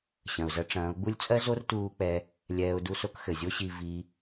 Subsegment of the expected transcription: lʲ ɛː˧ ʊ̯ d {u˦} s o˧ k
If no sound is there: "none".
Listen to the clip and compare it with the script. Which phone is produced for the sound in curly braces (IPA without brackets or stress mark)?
u˦